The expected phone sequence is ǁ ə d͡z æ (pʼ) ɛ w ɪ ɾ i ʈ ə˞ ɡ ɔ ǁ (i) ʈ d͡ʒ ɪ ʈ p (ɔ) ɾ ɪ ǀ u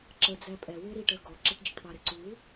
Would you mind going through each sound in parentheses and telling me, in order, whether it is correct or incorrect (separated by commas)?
correct, incorrect, incorrect